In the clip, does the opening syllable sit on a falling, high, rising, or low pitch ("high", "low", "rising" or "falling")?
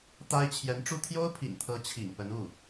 high